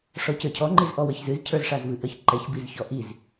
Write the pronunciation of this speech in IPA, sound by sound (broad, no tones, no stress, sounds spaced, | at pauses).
ʂ ɔ c ə˞ cʰ ɔ ŋ͡ǃ i z ʔ ɔ w ə ç z ɨ z cʰ ə˞ z ʂ a z v ɨ ʔ ə ç ǃ ɛ ç b i z ç ɔ ʔ i z